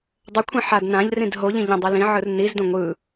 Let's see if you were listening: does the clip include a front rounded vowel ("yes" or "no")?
no